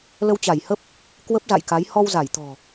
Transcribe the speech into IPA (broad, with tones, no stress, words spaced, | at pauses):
lə˧wt͡ɕa˧˩jhə˦˥p̚ | kwə˦˥p̚za̰˧˨jka˨˦j hɔ˧wza˧˩jt̪ɔ̤˨˩